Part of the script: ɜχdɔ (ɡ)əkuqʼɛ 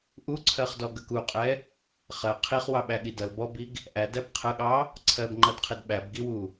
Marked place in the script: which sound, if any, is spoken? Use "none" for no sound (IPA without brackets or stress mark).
ɡ